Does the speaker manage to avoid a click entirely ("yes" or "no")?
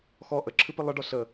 no